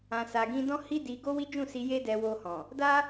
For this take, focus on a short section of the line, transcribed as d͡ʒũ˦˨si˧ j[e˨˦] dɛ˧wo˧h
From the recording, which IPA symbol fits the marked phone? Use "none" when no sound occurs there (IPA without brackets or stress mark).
e˦